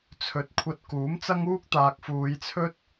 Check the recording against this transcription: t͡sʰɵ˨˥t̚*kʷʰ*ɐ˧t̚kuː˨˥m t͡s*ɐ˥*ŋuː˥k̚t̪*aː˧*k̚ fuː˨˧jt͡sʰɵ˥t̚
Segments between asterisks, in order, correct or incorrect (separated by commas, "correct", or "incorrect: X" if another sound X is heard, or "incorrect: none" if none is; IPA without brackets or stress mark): correct, correct, incorrect: aː˨